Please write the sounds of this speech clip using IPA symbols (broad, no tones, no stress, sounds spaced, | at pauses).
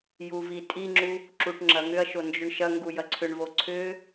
j u v i tʼ i ŋ͡ǁ u | ǁ u ʈ ŋ͡ǁ ɐ ŋ ʏ ɐ̯ ʃ o n d͡ʒ ʏ ɳ ʃ ɐ ŋ ɡ u j ɐ ǀʰ ʏ ɳ v o ǀʰ ʏ